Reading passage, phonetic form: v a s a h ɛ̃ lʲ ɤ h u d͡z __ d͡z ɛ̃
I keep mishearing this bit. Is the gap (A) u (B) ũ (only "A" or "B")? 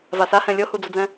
A